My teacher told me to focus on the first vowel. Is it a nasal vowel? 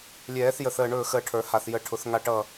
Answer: no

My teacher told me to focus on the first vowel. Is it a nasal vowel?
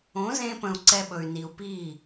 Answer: yes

